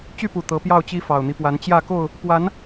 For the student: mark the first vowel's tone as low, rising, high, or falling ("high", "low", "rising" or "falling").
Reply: falling